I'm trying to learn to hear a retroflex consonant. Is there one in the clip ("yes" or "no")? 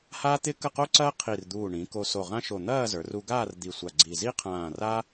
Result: yes